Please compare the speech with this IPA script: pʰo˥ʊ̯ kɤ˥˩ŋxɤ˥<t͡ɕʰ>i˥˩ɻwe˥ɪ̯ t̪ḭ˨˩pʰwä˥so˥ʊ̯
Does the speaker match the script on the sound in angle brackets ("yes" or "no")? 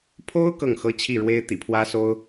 yes